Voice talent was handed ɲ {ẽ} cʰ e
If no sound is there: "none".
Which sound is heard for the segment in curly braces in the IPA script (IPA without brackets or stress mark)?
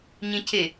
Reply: ẽ